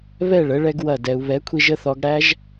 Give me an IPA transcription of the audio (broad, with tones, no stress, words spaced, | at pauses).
βɛ˦˨ɭə˨˦ ɭɛ˦ɡwɐ˦˨dɛ˧u̯ βɛ˨˦kʷʰi˧ʒ ə˧θɔ˧ɡɽæ˦ʒ